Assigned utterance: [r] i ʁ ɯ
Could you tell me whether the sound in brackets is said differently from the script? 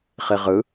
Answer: yes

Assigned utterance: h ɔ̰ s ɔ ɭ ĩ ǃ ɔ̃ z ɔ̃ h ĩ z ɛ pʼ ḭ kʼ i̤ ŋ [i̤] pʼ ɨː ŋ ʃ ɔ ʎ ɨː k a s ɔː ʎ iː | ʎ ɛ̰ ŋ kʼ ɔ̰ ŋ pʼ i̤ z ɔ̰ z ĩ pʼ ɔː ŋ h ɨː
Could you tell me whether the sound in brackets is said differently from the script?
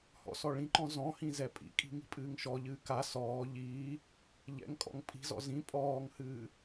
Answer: no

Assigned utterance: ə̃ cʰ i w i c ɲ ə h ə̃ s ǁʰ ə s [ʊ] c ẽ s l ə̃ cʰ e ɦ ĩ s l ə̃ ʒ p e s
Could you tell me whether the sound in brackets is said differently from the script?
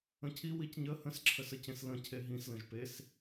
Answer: yes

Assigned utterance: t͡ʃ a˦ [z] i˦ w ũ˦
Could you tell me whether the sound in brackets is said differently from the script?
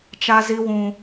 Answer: no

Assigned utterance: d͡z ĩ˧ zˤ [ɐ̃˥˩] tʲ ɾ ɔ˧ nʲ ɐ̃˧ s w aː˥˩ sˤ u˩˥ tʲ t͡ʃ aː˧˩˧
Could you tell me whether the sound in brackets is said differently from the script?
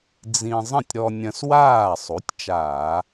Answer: no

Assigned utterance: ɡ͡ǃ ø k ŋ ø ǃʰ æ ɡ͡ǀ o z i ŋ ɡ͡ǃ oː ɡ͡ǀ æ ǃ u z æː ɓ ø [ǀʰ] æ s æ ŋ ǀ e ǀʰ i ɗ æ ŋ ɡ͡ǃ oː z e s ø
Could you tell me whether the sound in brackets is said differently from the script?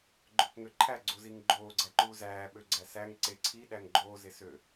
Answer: yes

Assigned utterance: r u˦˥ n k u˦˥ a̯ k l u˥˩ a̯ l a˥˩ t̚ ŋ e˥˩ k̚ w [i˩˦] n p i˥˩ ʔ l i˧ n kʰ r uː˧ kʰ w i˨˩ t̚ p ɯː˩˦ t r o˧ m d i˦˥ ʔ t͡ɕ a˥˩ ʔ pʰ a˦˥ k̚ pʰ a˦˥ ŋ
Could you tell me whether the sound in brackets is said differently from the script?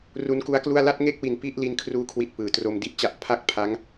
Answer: yes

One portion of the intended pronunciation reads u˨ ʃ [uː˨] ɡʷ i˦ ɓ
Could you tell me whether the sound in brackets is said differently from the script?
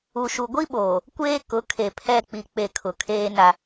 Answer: yes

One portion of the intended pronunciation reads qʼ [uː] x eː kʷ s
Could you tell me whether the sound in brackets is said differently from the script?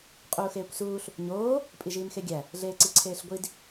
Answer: no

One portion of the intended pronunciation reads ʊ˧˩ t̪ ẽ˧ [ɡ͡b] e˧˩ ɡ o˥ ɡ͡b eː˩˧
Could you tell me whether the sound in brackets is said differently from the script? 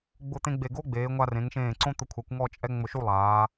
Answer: no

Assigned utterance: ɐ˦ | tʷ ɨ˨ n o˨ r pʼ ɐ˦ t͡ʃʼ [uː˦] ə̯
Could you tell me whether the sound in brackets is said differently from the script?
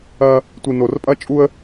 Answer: yes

